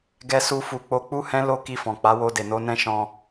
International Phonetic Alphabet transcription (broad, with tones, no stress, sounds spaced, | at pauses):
ɡ ɛ˦ s u˦ f u˧ k͡p o˧ k͡p u˦ h ɛ̃˦ l o˦ k i˧ f ɔ̃˨ k͡p a˨˦ w o˧ d e˨ n o˨˦ n ɛ̃˦ ʃ ɔ̃˧